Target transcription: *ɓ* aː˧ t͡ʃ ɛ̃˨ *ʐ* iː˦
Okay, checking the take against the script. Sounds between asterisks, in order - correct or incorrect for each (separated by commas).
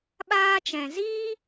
correct, incorrect